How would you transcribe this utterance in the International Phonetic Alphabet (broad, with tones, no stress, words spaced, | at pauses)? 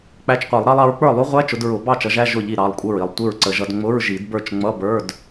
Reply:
k͡pæ˧˥˧t͡ʃqʷi˨˩˦lˠɾɑ˦˥lˠ ɑ˨˦ɹk͡pə˞˥˩lˠu˦˥ʁʷæ˧˥˧ t͡ʃʊ˨˦dɹʊ˨˩˦ bɑ˥˩t͡ʃʌ˨˦ʒæ˧˥˧ ʒʊ˥˩ʎi˥˩ ɾɑ˩˧˩lˠkʷʼə˥˩ɹi˥˩lˠ tʷɪ˥˩ɹǀə˨˩˦ʒʌ˨˦d ŋ͡mʊ˧˥˧ɹʒi˨˩˦dbə˞˥˩t͡ʃ ŋ͡mʌ˧˥˧bə˞˧˥˧d